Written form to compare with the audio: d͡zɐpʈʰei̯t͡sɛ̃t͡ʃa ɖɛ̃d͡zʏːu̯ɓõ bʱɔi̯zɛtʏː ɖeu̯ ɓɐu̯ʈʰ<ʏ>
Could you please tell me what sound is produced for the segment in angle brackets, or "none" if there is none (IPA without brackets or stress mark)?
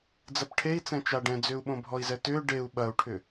ʏ